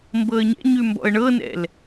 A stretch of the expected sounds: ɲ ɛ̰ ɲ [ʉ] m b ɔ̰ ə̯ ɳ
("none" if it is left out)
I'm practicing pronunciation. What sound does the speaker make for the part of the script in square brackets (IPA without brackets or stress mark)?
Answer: ʉ